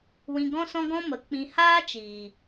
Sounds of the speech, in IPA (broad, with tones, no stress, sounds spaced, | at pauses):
w ĩ˧ ɡ ɔ̃˦ s ɔ̃˦ ɡ ɔ̃˦ m ə˨˦ k͡p ĩ˧ h aː˦ t͡ʃ iː˨